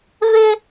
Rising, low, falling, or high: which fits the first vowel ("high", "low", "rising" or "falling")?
high